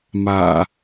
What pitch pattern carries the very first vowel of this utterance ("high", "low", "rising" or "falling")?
low